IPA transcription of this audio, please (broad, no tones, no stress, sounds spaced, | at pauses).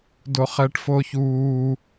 d o χ ɛ ʈ f o ç uː